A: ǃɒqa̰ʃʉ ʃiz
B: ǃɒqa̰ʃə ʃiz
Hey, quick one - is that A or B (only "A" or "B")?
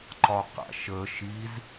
B